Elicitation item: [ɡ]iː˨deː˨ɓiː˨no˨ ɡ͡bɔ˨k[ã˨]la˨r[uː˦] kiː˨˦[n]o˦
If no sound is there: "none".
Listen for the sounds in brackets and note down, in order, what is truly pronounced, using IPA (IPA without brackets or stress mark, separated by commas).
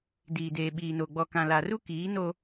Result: d, ã˨, u˦, n